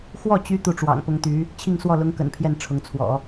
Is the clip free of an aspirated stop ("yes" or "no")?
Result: no